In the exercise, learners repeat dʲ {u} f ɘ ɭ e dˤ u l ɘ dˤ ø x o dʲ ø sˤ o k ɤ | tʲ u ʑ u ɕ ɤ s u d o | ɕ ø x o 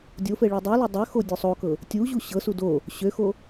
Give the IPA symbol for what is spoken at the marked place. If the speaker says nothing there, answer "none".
o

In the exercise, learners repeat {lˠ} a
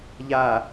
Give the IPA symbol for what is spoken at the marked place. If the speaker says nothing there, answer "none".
ʎ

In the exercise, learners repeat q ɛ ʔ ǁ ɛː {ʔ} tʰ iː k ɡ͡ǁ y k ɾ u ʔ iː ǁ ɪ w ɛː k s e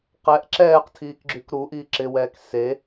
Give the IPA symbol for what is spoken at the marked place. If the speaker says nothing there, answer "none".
q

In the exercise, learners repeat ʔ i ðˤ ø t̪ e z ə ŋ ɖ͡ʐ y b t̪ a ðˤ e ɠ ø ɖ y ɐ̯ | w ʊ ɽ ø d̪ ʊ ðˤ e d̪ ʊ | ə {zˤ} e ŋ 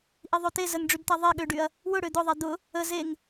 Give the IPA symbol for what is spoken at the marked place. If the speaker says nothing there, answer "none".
z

